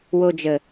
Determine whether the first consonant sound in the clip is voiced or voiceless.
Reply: voiced